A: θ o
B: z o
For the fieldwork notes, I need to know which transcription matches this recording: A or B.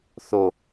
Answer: A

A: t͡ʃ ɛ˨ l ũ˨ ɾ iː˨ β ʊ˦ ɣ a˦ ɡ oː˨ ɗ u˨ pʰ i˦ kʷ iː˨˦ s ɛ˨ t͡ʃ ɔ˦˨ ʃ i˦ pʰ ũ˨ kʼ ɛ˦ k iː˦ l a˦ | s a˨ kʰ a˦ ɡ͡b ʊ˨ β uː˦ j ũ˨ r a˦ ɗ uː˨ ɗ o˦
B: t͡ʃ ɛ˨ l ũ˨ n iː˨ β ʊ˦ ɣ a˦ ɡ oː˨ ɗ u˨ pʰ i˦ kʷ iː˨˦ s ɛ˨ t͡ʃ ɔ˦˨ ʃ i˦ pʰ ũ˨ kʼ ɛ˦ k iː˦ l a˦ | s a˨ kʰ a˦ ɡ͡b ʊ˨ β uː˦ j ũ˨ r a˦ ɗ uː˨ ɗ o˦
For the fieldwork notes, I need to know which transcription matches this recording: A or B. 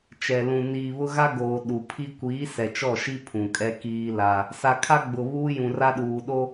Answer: B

